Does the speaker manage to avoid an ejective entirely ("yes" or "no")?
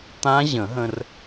yes